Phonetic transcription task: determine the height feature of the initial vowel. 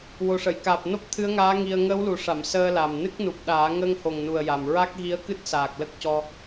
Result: mid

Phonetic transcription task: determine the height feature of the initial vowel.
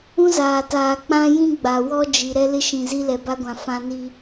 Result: high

